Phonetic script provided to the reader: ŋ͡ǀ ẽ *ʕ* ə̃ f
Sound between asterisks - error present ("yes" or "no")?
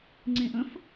yes